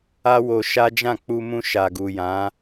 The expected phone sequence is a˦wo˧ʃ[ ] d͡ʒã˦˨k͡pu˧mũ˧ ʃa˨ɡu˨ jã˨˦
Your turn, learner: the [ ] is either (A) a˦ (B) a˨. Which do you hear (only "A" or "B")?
A